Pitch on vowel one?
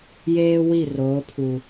high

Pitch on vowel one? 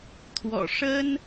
low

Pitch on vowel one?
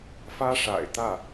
high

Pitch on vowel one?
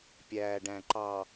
low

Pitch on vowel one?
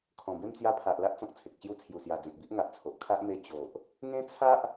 low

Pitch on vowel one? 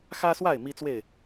high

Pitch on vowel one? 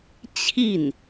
falling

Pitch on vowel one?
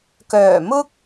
low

